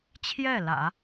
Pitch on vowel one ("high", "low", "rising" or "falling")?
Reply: falling